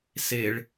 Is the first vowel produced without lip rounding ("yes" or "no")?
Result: yes